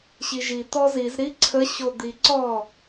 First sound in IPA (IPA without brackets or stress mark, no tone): ɕ